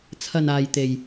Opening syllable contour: low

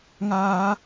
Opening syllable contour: high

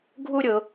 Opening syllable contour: high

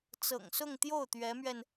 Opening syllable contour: low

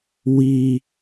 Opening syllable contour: high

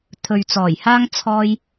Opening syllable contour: low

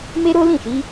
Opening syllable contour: high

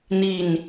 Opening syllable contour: falling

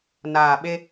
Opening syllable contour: low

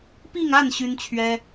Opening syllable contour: falling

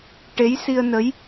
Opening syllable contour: rising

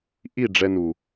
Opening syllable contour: falling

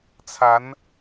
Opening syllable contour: rising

